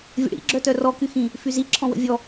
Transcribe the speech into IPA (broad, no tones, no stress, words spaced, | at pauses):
vʲə̰ɽḭ ɡ͡ǁœtœrɔ kyxĩ | fyzi ǁʰɔ̃wə̰vʲɔ